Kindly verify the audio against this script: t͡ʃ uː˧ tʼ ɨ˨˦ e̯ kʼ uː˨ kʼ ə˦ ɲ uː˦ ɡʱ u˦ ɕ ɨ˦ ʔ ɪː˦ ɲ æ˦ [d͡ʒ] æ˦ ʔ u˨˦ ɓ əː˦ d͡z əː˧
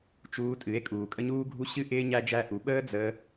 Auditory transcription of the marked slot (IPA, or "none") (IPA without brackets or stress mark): d͡ʒ